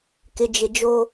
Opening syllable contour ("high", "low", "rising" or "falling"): low